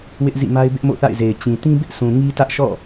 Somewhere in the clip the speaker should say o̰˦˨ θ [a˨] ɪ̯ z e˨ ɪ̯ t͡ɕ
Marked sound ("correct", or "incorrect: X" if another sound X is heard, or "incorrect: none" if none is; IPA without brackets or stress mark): incorrect: a̰˦˨